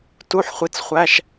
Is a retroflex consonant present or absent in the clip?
absent